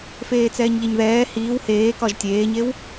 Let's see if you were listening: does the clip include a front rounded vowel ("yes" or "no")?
no